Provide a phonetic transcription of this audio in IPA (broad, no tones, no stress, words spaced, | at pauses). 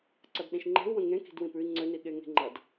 ǀʌdɗĩʃŋ͡ǃe̤u̯ wə̃ŋẽ ki̤dwĩpʉi̯ ŋ͡ǀøniɠe ŋe̤ŋ͡ǃʌd